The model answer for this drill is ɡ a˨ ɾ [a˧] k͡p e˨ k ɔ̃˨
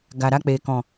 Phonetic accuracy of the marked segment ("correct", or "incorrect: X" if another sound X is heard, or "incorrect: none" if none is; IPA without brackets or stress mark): correct